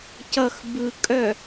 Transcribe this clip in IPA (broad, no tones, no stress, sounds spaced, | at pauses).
c ʌ x b ɯ kʼ œ